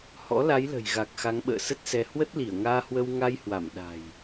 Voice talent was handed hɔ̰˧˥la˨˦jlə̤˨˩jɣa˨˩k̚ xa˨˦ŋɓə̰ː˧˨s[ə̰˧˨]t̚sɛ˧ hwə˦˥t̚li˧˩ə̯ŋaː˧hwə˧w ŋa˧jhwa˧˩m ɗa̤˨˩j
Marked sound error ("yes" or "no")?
yes